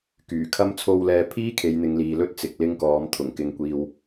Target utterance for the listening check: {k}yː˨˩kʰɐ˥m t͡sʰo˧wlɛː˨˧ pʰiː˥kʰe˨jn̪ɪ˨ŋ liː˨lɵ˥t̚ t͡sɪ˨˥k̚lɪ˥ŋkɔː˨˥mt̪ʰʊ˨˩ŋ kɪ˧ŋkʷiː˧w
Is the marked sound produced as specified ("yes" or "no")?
yes